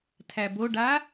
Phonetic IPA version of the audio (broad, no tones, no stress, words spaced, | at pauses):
tʰæboɖa